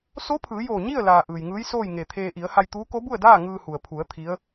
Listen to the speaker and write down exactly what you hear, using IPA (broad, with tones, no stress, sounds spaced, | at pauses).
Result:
s o˧˥ pʰ ɯː˩˧ j oː˧˩ ɲ i˥˨ ə̯ l aː˩ ʔ ɯː˩ j ŋ ɯː˧˥ j s oː˥˨ j ŋ e˧˩ t̪ʰ eː˧ ʔ i˩˧ ə̯ h a˧ j t̪ uː˧˥ k o˧˥ b u˥˨ ə̯ d aː˥˨ ŋ ɯː˧ h u˩ ə̯ pʰ u˩˧ ə̯ t̪ʰ i˧˥ ə̯